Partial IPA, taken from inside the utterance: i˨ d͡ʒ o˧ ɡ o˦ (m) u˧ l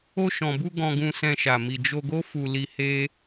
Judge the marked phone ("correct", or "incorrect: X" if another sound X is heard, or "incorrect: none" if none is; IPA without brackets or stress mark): incorrect: f